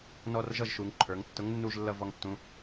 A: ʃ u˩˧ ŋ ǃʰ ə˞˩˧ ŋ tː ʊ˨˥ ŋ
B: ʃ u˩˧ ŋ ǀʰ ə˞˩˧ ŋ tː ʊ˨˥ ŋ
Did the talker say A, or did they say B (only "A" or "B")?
A